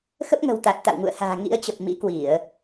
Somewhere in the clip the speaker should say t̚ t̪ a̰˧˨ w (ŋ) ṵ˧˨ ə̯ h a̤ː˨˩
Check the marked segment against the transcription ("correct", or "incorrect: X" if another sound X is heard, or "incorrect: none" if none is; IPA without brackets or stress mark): correct